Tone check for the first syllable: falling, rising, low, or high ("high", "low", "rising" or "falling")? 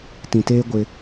low